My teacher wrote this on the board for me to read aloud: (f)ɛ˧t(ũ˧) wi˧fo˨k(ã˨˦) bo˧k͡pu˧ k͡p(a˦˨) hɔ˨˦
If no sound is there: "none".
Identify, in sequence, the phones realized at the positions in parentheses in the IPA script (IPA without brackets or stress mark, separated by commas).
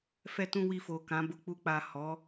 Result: f, ũ˧, ã˨˦, a˨